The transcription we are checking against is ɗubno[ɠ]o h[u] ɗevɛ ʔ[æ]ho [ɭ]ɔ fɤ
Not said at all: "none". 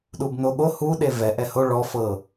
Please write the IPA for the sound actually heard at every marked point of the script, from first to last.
ɠ, u, ɛ, ɭ

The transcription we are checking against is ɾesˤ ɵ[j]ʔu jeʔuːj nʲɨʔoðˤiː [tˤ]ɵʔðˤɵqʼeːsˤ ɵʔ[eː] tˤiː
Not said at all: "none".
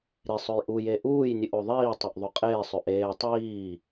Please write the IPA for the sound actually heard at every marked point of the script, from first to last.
j, tˤ, eː

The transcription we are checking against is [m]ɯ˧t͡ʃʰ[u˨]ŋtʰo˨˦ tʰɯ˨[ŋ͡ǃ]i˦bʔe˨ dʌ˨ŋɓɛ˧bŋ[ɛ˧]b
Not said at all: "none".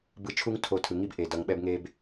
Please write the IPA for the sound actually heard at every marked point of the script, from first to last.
b, u˦, ŋ, e˧

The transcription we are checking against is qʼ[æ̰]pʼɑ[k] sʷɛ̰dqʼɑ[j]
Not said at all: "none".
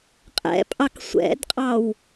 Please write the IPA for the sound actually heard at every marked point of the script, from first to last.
ɛ̰, k, w

